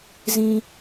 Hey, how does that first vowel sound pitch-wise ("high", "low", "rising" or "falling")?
high